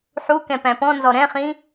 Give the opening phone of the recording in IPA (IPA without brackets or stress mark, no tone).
ħ